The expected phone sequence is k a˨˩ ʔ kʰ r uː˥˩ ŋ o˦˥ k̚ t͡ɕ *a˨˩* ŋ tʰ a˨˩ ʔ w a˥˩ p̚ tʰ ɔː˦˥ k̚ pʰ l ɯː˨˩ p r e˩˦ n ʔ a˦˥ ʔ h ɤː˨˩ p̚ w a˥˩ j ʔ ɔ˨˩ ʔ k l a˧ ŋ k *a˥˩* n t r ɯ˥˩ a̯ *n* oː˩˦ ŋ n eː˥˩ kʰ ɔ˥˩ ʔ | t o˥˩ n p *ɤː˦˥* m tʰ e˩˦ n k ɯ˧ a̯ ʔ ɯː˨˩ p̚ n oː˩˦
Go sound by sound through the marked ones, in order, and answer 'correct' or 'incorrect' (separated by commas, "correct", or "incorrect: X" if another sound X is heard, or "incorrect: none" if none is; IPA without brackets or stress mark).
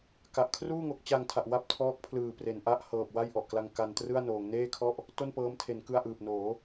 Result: incorrect: a˧, incorrect: a˧, correct, correct